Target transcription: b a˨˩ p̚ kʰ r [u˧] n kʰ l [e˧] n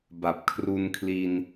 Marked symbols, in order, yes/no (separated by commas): yes, no